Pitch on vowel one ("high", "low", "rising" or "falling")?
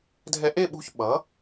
rising